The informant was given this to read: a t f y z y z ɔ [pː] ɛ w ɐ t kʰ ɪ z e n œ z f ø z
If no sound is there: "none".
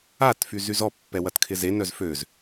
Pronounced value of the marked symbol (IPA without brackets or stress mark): pː